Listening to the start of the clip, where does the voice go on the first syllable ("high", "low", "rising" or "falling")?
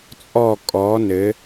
falling